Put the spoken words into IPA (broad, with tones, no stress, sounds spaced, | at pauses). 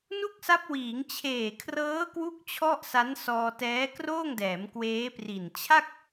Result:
n u˥˩ k̚ s a˦˥ p̚ w iː˩˦ ŋ t͡ɕʰ eː˨˩ kʰ r ɤː˦˥ k w u˥˩ k̚ t͡ɕʰ ɔ˥˩ ʔ s a˦˥ n s ɔː˧ t ɛː˦˥ k r oː˥˩ ŋ d ɛː˩˦ m k w eː˦˥ p r i˨˩ n t͡ɕʰ a˥˩ k̚